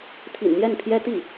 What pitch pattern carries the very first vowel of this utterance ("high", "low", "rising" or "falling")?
low